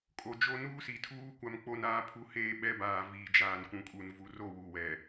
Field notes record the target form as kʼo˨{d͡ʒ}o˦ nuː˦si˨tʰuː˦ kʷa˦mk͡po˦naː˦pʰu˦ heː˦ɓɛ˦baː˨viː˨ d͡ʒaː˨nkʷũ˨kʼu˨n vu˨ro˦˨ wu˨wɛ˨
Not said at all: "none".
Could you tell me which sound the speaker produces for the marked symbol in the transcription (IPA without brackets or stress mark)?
d͡ʒ